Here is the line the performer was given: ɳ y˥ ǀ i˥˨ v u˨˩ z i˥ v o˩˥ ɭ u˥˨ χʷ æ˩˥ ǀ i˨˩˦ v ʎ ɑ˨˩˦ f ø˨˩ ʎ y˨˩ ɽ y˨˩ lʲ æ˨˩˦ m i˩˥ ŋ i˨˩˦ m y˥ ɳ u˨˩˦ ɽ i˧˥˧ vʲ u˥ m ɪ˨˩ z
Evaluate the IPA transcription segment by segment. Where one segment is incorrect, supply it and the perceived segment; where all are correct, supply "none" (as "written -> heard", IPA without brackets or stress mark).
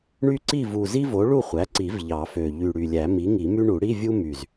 ɪ˨˩ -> y˨˩